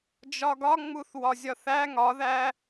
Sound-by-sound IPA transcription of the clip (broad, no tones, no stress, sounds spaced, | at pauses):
d͡ʒ ɒ ɡ ɒ ŋ͡m u θ w ɒ zʲ ɒ θ æ ŋ ɒ ð æ